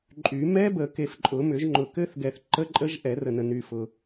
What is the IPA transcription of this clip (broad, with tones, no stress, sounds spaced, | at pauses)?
ǃʼ y˨˩˦ m ɛ˦˥ b ə˨˩˦ k e˨ f ǃʼ ʊ˨˩˦ m ʏ˨˩˦ ʒ ŋ͡ǃ ʊ˨ k ɘ˦˥ θ ɡ ɛ˨ θ ǃ ə˦˥ ǃʼ ə˦˥ ʒ ʔ ɛ˨˩˦ r ə˨ n ə˨ n y˨ f ʊ˨